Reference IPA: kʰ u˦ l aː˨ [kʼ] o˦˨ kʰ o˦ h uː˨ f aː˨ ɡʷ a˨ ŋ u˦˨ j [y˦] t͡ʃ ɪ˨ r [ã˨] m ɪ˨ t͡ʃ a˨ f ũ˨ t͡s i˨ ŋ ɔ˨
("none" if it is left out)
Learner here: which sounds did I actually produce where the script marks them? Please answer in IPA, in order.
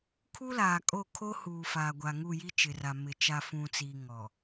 kʼ, i˦, a˨

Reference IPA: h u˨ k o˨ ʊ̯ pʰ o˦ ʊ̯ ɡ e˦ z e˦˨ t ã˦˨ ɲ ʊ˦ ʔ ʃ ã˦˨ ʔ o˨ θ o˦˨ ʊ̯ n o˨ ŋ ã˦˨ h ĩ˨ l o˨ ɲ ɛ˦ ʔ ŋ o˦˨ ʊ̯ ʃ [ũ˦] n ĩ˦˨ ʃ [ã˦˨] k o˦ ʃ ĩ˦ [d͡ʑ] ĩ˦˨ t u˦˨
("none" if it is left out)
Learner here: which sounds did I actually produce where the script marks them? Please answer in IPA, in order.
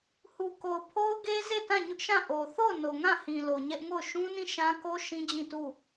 ũ˦, ã˦, d͡ʑ

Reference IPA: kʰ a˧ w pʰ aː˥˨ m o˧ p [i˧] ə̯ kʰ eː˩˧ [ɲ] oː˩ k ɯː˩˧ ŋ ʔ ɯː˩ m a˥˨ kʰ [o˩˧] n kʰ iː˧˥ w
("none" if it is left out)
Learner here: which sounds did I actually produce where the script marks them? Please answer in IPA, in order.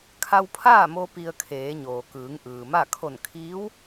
i˧, ɲ, o˧˩

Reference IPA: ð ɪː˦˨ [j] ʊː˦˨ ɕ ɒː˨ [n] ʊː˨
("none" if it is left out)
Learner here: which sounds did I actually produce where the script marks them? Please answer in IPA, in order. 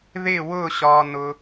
w, n

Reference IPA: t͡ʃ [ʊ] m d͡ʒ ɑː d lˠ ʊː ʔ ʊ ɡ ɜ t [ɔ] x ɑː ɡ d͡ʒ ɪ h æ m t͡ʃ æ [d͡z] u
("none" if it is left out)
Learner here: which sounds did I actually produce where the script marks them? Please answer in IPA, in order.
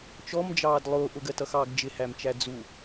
ɔ, ʌ, d͡z

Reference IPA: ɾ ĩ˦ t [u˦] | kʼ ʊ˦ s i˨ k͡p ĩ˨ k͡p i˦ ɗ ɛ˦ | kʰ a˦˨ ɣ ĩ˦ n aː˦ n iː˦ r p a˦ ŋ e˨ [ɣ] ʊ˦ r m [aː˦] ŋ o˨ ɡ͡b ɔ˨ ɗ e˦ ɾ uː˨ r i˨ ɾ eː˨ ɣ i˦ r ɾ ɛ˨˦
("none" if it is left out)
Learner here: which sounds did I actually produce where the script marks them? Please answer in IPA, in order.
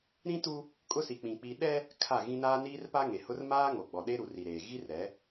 u˦, h, aː˦

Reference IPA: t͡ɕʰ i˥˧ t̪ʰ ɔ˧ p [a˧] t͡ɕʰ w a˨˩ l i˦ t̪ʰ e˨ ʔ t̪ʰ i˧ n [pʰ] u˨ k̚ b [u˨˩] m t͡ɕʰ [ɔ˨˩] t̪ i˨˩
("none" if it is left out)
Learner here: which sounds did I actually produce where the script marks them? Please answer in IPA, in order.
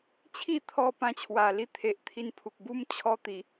ã˧, pʰ, u˥˧, ɔ˧

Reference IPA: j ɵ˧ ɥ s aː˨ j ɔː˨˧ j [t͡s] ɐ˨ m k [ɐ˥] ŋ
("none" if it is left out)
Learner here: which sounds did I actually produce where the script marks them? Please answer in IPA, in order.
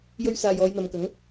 n̪, ɐ˨˥

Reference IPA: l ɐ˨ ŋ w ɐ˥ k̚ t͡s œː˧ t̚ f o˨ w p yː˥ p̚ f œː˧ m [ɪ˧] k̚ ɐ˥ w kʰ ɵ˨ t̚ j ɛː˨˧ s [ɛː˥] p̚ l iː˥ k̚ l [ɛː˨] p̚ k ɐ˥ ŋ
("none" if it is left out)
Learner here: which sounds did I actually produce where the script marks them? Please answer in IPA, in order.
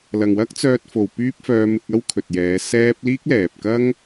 ɪ˧, ɛː˥, ɛː˨

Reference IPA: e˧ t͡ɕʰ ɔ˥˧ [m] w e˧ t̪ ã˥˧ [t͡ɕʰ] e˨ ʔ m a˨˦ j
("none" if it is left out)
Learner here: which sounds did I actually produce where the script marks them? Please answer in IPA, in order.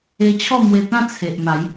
m, t͡sʰ

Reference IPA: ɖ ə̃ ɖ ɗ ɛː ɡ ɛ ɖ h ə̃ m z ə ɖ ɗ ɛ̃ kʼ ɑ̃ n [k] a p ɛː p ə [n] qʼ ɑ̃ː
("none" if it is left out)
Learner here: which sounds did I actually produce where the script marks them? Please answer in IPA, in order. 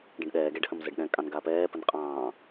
ɡ, n

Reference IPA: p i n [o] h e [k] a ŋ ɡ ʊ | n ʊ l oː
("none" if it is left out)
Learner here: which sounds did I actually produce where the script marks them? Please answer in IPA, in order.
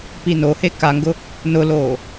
o, k

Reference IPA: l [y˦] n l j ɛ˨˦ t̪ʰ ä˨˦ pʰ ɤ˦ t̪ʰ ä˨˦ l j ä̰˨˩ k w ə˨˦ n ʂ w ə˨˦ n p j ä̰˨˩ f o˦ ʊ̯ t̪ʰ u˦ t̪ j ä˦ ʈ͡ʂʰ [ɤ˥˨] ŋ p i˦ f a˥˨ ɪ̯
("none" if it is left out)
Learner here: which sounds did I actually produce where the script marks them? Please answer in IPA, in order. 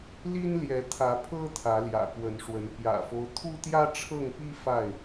i˦, ɤ˥˨

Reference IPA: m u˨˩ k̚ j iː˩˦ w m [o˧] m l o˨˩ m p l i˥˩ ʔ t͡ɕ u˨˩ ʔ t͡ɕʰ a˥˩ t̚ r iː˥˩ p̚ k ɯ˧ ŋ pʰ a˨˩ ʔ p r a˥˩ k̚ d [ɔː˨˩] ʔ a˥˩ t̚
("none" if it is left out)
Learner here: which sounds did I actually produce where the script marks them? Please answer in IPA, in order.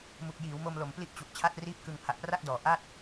o˧, ɔː˨˩

